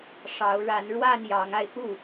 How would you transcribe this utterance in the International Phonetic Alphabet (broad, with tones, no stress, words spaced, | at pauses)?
ʂɑ˨˦ʊ̯ ɻa˨˦nɻwa˥˨n jɑ˨˦ŋa˧ɪ̯xu˥˨